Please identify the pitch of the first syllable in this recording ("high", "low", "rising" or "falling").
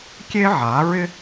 high